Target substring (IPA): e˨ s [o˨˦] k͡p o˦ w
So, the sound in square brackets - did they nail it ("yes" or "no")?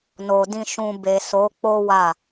yes